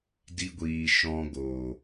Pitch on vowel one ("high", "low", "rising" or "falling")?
high